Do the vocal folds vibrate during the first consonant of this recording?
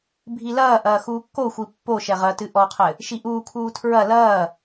yes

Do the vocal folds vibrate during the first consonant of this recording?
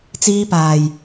no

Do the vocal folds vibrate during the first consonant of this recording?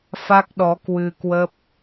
no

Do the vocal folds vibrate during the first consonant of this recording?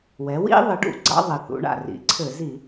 yes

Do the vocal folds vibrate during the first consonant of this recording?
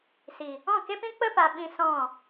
no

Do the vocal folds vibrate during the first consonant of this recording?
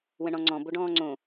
yes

